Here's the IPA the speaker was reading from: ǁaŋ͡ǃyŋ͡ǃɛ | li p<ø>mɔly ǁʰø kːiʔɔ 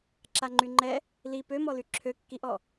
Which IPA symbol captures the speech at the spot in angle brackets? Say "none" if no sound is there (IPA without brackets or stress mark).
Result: ø